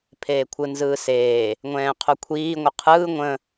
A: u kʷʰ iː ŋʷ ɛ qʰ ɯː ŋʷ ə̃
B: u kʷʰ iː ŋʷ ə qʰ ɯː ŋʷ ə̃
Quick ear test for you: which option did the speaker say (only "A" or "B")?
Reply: B